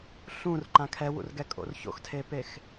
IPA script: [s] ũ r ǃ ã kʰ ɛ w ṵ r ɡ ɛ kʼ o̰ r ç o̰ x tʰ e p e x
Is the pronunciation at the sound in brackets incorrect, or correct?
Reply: incorrect